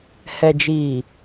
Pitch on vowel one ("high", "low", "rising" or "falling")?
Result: low